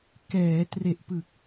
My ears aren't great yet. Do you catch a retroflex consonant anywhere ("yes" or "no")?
no